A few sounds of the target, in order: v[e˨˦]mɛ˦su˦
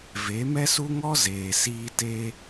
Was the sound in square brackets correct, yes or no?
yes